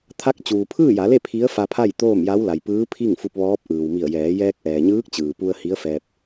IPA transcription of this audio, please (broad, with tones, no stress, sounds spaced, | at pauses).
t̪ʰ a˧˥ k̚ t͡ɕ uː˩ pʰ ɯː˥˨ j a˩˧ l e˥˨ pʰ i˧˥ ə̯ f a˧ pʰ a˥˨ j t̪ oː˥˨ m j a˧˥ w l a˩ j p ɯː˧˥ pʰ i˥˨ ŋ f u˧ p̚ ʋ ɔː˧˥ p̚ ʔ ɯː˩ w m i˧˩ ə̯ j ɛː˩˧ j ɛː˧ k̚ ʔ ɛː˩ ɲ ɯː˧˥ k̚ t͡ɕ ɯː˩ p u˧ ə̯ h i˧˥ ə̯ f ɛː˧ p̚